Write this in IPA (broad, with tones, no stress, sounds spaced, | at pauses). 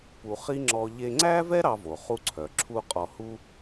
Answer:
p u˧ χ i˥ ŋ͡ǁ ɔ˧ ʎ e˧ ŋ͡ǀ æ˥ v ɛ˥ ɾ ɑ˧ v o˩ χ u˧ ǀʰ œ˩ ǁʰ u˧ qʼ ɔ˧ h u˥